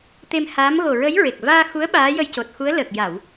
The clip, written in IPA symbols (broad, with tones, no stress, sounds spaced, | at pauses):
t̪ e˧ m h aː˧˥ m ɣ o˨˩ ɹ ə˧˥ j ɹ e˨˩ k̚ v aː˧ x u˧˥ ə̯ ɓ aː˧˥ j ə˧ j c o˨˩ t̚ x u˧˥ ə̯ l əː˨˩ k̚ j a˨˩˨ w